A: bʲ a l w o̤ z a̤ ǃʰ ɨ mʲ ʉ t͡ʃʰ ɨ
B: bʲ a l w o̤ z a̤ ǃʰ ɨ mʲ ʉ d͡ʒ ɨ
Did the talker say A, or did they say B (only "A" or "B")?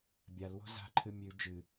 B